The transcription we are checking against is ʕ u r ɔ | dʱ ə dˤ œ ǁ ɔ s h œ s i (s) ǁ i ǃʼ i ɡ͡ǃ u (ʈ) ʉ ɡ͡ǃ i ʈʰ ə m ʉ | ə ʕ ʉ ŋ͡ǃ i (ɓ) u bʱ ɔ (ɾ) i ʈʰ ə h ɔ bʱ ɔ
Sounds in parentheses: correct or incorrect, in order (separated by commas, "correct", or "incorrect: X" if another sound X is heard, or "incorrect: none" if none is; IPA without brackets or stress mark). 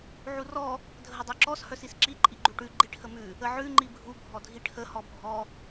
correct, correct, incorrect: bʱ, incorrect: dʱ